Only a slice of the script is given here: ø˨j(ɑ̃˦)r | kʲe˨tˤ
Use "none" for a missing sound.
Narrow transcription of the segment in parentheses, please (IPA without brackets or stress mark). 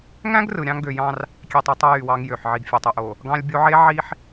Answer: ɑ̃˦